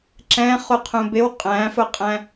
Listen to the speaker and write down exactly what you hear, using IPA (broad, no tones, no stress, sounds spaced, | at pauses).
ǁ ɛ̃ χ u qʰ ũ b ɪ w qʼ æ̃ f ʊ qʼ æ̃